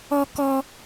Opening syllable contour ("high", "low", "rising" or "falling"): high